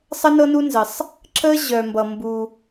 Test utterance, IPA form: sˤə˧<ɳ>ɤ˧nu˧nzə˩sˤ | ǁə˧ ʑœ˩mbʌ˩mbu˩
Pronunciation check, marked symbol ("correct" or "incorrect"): incorrect